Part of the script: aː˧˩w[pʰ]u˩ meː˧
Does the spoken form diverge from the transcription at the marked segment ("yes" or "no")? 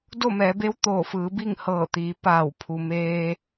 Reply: no